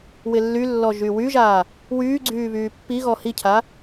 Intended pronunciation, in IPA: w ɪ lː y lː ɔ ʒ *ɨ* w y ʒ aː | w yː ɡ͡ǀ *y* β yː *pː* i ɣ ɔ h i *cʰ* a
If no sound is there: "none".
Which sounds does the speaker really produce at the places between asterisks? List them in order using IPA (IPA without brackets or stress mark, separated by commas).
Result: y, yː, pː, cʰ